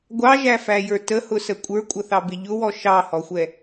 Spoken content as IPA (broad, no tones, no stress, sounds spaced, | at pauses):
ɡʷ ɑ ʒ æ f æ j ə˞ t ə h ʊ s ə kʷʼ ə˞ kʷʼ ʌ θ ɑ b ɪ ʎ ʊ w ɔ ʃ ɑ h ɔ xʷ ɛ